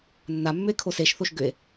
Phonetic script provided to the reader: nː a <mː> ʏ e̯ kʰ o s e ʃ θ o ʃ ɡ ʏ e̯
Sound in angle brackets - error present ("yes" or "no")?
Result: no